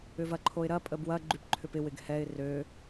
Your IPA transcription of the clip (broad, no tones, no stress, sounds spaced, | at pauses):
ʏ v ɐ ǃʰ o ɪ̯ ɾ ɐ pʼ ə b w ɐ ɡ͡ǃ y p ǃʰ ʏ p ɪ w ɪ ɡ h ɛ ɪ̯ r ø